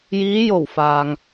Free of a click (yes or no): yes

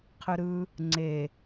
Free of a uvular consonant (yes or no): no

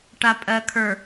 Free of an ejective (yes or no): no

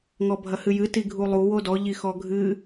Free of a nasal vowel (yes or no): yes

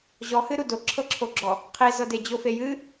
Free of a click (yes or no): no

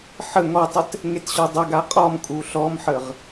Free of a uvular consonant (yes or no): no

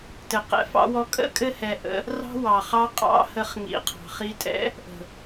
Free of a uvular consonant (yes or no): no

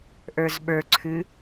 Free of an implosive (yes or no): no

